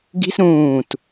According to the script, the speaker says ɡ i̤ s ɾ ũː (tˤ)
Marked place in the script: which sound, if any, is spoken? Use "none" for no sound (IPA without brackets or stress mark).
t